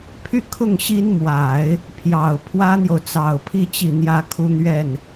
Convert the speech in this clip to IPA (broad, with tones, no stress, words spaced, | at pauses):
pʰy˥˧kʰʊ˥˩ŋ ɕi˥nmwa˨˩˦ɪ̯ | pʰjɑ˨˩ʊ̯ pʰwä˥n̪jo˨ʊ̯t͡sɑ˨˩ʊ̯pʰi˥˧ t͡ɕi˥˩n̪jä˥kʰu˥n̪ɥɛ˥˩n